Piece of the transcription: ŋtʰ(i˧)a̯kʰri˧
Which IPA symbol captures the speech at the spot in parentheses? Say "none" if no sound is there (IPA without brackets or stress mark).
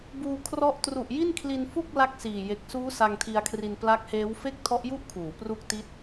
i˧